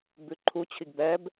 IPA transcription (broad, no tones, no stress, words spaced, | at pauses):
bʉǃʰu t͡ɕʰiɡbɛb